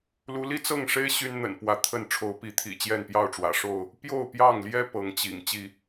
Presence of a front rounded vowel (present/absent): present